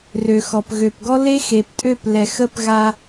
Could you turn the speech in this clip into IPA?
r ø˨ x ɔ˨ p ɣ ø˨ p ɡ ɔ˦ l e˦ x e˨ p tʼ ø˦˨ p l ɛ˨ x ə˦ p ɣ a˦

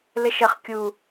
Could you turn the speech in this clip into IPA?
l ɘ ʃ ə χ kʲ u

